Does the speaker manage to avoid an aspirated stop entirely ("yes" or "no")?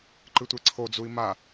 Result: no